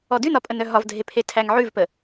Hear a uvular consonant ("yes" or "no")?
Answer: no